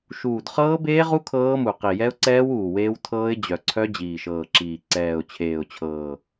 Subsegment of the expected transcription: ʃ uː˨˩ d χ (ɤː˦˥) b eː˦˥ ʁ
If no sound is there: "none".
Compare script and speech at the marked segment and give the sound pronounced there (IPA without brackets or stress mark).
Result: ɤː˦˥